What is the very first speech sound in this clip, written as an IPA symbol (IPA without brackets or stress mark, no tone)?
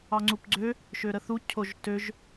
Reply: ɑ